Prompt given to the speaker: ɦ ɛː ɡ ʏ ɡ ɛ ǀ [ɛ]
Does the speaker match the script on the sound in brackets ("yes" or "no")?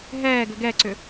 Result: no